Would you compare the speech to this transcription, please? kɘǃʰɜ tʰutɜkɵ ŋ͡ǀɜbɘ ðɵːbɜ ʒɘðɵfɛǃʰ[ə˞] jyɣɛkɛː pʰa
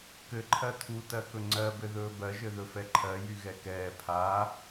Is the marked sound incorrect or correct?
incorrect